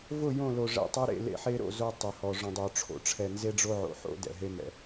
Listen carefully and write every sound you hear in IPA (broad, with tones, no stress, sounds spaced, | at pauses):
v ʊ˦˨ j õ˦˨ l o˨ ʐ ɛ̰˨ tˤ ʌ˦ ɾ ḛ˦˨ l ḛ˦ ħ e˦ ɾ o̰˦˨ z o˦ tˤ ʊ˨ h ɔ˨ ʐ õ˨ dˤ o˨ ʈ͡ʂʰ o̰˨ ʈ͡ʂʰ ɛ˨ n z e˦ ɖ͡ʐ o˦ ʕ o̰˨ ħ o̰˦ d ɛ̰˨ ɦ e˦ m ɛ̰˨